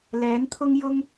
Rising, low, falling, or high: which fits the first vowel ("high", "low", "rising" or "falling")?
rising